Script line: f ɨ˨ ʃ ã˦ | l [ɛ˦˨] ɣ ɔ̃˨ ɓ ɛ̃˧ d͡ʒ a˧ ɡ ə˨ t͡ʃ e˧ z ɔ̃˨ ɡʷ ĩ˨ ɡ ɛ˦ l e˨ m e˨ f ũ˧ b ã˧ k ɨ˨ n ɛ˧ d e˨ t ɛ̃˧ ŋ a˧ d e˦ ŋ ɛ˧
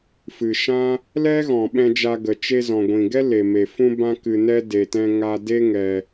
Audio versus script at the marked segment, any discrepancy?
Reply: yes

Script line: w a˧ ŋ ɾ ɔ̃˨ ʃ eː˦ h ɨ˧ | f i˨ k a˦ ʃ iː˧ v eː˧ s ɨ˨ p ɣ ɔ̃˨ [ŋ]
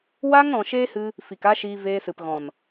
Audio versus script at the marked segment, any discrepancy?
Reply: yes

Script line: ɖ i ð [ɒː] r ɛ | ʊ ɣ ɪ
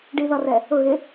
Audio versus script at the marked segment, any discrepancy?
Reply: yes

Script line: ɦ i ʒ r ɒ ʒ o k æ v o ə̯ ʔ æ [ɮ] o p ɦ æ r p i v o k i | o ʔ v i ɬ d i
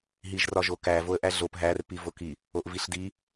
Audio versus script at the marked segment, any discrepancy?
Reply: no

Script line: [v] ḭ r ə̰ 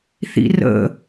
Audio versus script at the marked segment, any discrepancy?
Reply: yes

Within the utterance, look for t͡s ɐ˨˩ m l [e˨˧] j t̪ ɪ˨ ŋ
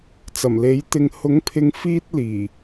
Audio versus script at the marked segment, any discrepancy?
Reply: yes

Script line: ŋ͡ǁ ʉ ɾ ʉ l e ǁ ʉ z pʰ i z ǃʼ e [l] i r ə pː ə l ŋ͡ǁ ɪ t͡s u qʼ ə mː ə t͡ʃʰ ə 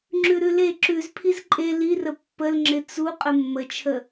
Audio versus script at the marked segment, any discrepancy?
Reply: no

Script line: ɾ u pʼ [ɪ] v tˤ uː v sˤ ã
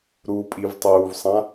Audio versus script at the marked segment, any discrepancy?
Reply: yes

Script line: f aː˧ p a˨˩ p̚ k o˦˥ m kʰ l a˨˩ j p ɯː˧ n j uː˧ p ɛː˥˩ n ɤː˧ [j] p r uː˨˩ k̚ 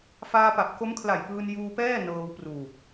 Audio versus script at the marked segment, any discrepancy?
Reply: yes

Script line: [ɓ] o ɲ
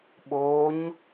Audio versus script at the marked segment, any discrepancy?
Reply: no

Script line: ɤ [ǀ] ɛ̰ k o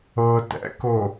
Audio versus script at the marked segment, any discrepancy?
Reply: yes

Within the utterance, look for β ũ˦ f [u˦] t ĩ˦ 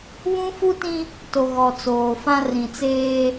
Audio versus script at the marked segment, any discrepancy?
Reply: no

